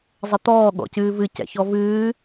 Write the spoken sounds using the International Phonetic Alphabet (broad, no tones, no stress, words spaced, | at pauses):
zˤət̪ɔː ɠɔ̰cɨːvɨ cɛ̰çɔvɨː